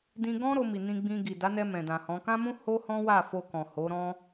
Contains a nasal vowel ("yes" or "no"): yes